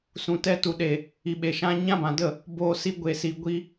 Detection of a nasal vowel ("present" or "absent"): present